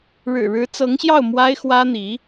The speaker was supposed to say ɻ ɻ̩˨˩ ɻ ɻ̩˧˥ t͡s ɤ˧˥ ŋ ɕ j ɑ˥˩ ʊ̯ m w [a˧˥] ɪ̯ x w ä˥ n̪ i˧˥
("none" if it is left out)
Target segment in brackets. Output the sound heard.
a˥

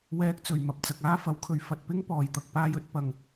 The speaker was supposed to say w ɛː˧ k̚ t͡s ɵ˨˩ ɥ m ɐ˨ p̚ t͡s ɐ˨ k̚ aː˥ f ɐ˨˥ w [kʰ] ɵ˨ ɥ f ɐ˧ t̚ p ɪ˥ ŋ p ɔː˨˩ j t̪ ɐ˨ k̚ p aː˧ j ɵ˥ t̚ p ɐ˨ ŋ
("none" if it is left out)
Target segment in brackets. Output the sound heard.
kʰ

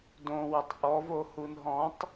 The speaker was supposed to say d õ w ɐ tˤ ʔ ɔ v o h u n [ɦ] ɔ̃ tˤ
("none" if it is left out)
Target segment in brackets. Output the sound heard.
ɦ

